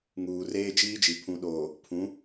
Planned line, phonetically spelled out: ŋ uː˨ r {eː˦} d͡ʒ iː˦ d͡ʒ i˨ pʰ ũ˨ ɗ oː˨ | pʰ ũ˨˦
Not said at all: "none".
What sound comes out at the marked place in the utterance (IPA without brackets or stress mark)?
eː˦